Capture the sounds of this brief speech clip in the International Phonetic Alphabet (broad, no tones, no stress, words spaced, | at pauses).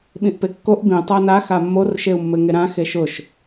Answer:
ɓĩʔpekːoʔ bĩ tˤana xamːor ʃeu̯mːɘŋeɾã xeʃʊʃ